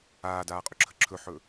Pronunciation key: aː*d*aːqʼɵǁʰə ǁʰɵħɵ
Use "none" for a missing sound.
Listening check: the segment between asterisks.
d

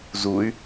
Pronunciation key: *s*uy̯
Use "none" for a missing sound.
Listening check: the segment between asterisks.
z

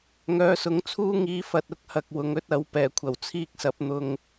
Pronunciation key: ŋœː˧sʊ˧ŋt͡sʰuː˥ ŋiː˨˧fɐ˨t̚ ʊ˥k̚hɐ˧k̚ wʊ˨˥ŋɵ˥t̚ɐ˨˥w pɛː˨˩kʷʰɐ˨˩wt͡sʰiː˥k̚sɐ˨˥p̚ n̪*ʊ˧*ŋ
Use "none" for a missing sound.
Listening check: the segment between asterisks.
ʊ˧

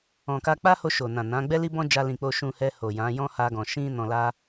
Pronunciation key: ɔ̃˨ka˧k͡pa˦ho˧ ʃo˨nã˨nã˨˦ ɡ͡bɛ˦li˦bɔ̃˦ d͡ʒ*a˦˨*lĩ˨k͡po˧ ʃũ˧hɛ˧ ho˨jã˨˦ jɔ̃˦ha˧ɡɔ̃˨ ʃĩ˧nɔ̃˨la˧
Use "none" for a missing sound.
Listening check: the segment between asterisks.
a˧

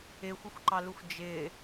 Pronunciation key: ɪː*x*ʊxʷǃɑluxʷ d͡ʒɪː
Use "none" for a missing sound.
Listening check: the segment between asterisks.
xʷ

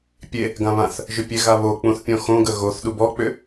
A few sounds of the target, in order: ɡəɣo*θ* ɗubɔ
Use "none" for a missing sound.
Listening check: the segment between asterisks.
θ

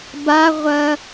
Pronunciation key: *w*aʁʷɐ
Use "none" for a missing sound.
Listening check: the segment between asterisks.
b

